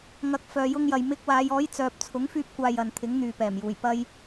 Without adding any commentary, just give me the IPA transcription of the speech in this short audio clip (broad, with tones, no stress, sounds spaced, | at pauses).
ŋ ɐ˨˥ k̚ f œː˨ j ʊ˧ ŋ j ɐ˨ j m ɪ˧ k̚ w aː˨˧ j ɔː˨˥ j t͡s œː˨ p̚ t͡sʰ ʊ˨˥ ŋ f yː˥ p̚ kʷ aː˧ j ɐ˨ n t̪ʰ ɪ˨˥ ŋ n̪ yː˨ p ɛː˨˩ m j uː˨˩ j p ɐ˧ j